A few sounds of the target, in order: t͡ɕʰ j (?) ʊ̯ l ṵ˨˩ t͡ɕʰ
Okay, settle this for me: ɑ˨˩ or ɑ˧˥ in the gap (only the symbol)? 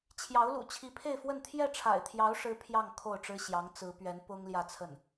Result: ɑ˧˥